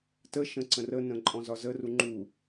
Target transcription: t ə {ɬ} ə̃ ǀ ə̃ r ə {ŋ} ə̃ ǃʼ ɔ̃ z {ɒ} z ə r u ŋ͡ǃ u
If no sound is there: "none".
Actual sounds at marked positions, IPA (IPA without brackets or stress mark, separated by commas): ʃ, n, ɒ